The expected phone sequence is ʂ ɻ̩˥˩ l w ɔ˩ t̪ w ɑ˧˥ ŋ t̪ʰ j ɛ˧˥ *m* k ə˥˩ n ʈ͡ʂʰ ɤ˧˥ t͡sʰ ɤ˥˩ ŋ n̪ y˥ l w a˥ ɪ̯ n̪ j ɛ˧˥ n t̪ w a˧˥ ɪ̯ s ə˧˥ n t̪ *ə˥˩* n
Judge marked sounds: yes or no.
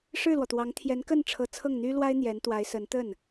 no, yes

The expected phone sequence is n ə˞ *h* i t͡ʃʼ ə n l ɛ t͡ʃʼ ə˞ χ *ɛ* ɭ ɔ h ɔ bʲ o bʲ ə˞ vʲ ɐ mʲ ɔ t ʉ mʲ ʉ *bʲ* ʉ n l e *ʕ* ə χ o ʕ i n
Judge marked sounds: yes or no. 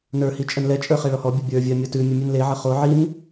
yes, yes, no, yes

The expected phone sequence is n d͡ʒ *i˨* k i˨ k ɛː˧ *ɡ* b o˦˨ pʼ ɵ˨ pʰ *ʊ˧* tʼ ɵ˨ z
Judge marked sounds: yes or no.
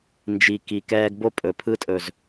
yes, yes, no

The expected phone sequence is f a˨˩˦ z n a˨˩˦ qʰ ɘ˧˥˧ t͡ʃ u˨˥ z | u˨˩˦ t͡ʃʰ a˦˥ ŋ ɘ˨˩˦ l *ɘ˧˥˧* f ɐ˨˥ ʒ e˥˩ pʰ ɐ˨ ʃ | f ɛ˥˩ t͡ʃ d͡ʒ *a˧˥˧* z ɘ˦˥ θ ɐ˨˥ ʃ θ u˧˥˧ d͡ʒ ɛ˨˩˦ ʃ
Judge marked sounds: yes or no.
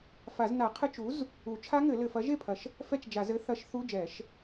no, no

